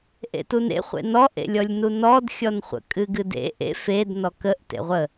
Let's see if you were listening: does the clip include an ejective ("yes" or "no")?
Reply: yes